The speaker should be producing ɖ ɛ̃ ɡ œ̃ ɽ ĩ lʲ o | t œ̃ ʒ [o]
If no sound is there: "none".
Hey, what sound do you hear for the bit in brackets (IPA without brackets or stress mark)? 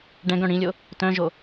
o